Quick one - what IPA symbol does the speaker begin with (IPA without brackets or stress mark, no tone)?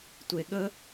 tʷ